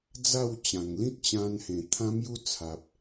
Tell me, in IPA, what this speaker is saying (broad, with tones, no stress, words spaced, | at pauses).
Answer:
d͡za˥˧w t͡ɕã˨˩ŋ lĩ˦t̚t͡ɕã˧nhẽ˨˩ t̪ʰã˦mju˦t͡sʰa˨p̚